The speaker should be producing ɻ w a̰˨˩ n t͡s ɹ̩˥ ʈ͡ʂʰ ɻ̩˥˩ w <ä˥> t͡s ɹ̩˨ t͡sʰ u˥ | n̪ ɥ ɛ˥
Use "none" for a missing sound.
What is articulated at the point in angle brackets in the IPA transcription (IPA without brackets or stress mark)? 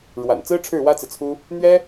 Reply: ä˥